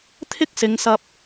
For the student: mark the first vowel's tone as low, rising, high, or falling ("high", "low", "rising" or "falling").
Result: high